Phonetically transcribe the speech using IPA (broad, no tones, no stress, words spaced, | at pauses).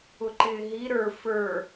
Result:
ʊǃɪːɦi ɾə˞ fə˞